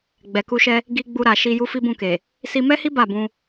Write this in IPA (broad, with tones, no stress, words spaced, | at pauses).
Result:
ɡ͡bɛ˨ku˧ʃɛ˧ | ɡi˧ ɡ͡bu˧ɾa˨ʃi˧ ju˦fi˦bũ˦˨ke˨ | si˧mɛ˦hi˦ ba˦˨bũ˧